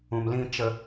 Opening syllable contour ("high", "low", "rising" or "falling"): low